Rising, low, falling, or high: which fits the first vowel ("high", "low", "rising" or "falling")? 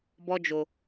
high